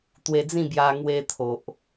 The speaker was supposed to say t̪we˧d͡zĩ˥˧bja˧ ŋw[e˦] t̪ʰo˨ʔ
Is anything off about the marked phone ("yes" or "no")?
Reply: yes